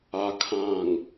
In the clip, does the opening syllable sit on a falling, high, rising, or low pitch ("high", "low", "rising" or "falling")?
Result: low